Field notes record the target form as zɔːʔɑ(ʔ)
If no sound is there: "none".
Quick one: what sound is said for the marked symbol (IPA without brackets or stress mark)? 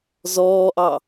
none